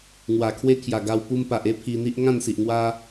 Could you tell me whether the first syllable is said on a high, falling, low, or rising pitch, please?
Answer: low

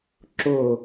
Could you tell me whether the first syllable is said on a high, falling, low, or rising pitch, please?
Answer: falling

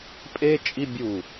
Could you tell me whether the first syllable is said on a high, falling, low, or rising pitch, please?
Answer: high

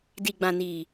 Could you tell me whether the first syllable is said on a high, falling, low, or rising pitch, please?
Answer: low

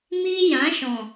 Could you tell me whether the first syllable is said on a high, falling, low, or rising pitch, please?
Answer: high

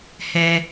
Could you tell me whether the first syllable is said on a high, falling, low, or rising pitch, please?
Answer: low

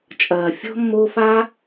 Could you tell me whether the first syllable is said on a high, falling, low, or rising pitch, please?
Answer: low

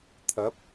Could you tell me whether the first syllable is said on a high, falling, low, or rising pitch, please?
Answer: rising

